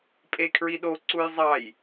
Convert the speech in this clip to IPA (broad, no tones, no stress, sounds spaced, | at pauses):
pʼ e kʰ ɹ i ɗ o ǀ u j zˤ ɑ j